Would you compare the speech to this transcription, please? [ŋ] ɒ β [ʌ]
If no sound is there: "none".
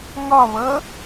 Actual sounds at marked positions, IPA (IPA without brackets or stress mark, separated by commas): ŋ, ʌ